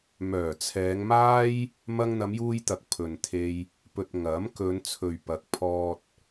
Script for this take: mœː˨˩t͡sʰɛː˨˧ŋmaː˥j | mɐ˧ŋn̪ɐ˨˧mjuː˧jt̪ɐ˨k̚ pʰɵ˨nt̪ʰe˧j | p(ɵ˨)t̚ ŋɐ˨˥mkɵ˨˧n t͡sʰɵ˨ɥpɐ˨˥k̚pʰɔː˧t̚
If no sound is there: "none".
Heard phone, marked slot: ɵ˨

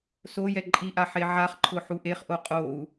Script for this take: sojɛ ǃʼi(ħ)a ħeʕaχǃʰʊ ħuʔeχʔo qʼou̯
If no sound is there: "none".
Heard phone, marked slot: ʔ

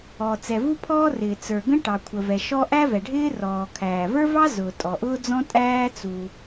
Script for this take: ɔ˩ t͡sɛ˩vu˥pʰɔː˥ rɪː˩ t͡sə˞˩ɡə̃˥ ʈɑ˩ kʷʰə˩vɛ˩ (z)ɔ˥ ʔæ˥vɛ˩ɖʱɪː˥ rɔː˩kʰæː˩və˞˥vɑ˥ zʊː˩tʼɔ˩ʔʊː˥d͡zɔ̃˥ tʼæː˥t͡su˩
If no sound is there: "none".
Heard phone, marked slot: ʃ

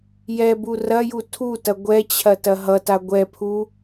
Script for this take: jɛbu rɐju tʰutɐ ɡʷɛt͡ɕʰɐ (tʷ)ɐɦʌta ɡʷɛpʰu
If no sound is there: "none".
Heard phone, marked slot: t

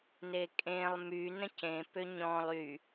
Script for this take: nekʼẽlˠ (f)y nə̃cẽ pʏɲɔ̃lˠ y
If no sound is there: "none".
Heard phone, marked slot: m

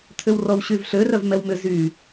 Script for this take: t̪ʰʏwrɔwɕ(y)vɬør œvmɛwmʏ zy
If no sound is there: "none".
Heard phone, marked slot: y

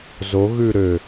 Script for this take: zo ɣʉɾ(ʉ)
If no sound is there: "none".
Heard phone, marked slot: ø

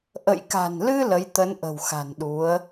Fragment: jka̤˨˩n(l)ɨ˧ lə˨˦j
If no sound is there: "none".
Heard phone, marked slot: l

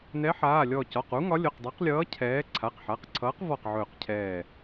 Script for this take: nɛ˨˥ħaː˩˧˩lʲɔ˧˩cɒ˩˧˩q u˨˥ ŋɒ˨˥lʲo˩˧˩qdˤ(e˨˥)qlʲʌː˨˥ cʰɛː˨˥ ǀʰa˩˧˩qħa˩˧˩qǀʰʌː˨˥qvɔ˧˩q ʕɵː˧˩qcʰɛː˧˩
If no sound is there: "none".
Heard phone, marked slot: e˨˥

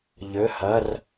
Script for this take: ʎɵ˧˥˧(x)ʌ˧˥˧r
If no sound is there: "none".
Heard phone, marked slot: h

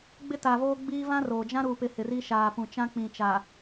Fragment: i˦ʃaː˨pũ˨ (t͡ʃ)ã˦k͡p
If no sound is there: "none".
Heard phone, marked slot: t͡ʃ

